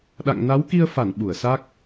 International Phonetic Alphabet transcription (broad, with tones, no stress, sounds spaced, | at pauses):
ɗ a̰˧˨ ŋ n a˨˦ w k i˧ ə̯ f a˧˩ n ɓ u˧˩ ə̯ s a˦˥ k̚